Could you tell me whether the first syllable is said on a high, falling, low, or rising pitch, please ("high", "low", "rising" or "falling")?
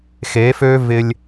rising